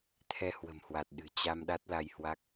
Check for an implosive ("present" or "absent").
present